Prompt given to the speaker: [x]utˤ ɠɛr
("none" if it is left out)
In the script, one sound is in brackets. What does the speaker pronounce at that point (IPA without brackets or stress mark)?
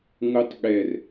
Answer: ŋ